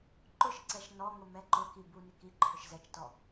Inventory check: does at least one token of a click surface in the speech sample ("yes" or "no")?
yes